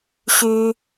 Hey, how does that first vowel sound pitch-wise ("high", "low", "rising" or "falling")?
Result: high